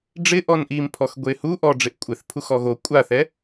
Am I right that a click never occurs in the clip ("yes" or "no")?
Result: yes